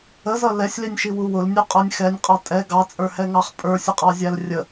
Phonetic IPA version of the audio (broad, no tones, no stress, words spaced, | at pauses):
əzʌ lɛsʲlinʲʃiwu wʊlnʲuqʼə˞nʲ xɛnʲqʼɑ tʼɛ ɡɑt͡sʼə˞hɛŋɑχ pʼə˞sʲəqʼɑzʲæl rʲə